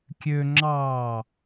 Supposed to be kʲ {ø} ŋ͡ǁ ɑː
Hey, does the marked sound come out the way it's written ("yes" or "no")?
yes